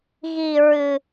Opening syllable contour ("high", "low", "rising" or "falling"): low